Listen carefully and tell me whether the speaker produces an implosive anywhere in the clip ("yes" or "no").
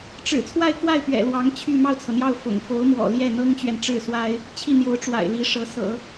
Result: no